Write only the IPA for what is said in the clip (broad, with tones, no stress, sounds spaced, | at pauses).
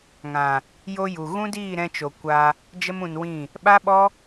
ŋ ã˨ | j o˧ j u˨ ɣ ũ˦ d iː˦˨ ɾ ɛ̃˧ t͡ʃ o˨ kʷ a˧ | d͡ʒ ə˧ m ũ˨ n w ĩ˦˨ | ɓ a˦ ɓ ɔ˦